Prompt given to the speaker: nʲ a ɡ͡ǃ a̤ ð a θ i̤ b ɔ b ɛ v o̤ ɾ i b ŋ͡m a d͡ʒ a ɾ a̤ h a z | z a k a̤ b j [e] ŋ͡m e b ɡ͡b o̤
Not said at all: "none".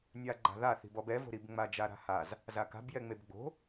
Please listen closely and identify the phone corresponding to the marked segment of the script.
ɛ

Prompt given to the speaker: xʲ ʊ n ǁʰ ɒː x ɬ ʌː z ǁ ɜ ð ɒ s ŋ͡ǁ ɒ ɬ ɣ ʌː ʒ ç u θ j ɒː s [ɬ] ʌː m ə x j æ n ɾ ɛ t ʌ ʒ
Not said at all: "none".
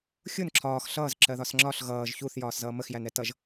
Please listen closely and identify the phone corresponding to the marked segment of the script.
z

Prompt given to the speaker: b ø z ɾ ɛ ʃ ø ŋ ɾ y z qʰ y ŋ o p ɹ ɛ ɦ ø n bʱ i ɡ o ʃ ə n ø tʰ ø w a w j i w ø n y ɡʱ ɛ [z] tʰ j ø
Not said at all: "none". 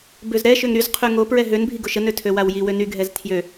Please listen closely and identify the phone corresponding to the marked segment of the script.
z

